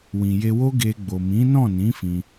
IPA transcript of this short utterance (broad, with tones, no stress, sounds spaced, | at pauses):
w ĩ˨ j e˧ w o˦ ɡ e˧ ɡ͡b o˨ m ĩ˨˦ n ɔ̃˦˨ n ĩ˨˦ f ĩ˧